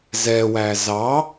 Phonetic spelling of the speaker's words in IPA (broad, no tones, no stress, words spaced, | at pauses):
zɛwæ zɑ